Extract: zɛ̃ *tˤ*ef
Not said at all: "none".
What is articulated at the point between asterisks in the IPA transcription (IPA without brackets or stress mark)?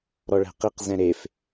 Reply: ɾ